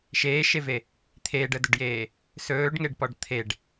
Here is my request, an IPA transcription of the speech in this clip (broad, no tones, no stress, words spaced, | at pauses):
ʃeːʃeve | t̪ʰeːɖədɵɖjeː | sɵːɖŋeɖpɔɖ t̪ʰeɖ